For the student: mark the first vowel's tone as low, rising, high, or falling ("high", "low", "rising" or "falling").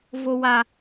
low